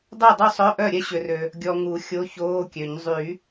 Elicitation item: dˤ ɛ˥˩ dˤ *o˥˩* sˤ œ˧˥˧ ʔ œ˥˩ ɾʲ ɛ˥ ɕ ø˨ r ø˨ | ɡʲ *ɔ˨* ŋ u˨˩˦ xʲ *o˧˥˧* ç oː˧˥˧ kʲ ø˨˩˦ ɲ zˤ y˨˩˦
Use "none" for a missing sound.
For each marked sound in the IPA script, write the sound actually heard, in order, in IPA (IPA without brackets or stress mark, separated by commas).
u˥˩, ɔ˨, o˧˥˧